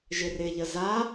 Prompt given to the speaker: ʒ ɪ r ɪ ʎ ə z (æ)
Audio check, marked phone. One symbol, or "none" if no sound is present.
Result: a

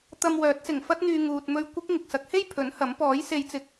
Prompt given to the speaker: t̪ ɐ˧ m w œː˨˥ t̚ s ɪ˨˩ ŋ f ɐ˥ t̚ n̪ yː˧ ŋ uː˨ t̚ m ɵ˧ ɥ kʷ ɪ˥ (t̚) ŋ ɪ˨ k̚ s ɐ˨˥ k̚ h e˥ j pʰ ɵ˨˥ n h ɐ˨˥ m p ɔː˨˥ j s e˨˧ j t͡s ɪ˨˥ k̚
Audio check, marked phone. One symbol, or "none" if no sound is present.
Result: k̚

